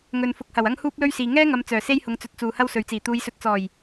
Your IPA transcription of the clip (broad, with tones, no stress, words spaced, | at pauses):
ŋɵ˨nfʊ˨k̚hɐ˨˩w ɐ˥ŋhuː˥p̚lɵ˥ɥsiː˨ ŋɛː˥ŋɐ˨˧m t͡sœː˨˩se˥jhʊ˨˧ŋt͡sɵ˨˥t̚ t͡suː˨hɐ˥wsɵ˨ɥt͡siː˨˩ t̪uː˨˧jsɵ˨t̚t͡sɔː˨˩j